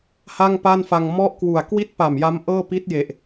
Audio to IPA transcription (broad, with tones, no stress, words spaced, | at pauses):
ha˥˩ŋpa˥˩nfa˧ŋ mɔ˥˩ʔkwu˨˩a̯ kwi˥˩t̚pa˨˩mja˦˥m ʔɤː˥˩ pi˦˥t̚je˨˩ʔ